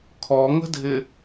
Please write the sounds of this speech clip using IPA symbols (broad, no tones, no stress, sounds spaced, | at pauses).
kʰ ɔ ŋ ə̤ dʱ ɪ